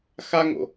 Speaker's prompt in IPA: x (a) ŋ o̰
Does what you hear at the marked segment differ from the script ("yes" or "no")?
no